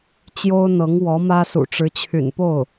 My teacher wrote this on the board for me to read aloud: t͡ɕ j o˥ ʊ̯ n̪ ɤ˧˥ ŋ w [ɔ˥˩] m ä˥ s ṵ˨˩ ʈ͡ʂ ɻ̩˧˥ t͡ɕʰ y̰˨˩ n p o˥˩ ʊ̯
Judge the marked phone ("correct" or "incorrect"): incorrect